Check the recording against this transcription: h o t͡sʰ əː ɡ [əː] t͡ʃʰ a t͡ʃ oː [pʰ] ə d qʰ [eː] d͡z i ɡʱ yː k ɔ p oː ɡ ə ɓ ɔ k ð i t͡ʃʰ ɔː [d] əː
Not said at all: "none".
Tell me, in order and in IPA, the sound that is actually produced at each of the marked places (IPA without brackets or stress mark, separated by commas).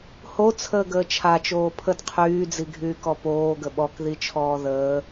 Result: əː, pʰ, yː, ð